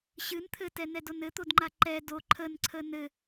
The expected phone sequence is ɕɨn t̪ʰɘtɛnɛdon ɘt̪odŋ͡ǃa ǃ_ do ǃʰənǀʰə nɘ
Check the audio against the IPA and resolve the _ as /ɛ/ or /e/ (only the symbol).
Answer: ɛ